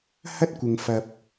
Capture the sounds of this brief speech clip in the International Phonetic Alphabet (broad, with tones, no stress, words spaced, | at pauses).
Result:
hɐ˥t̚kʷɪ˨ŋfɐ˨p̚